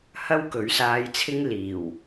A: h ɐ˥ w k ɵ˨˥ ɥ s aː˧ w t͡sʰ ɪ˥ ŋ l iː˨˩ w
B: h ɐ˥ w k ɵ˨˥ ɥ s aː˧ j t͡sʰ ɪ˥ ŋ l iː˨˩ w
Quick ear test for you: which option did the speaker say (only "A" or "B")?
B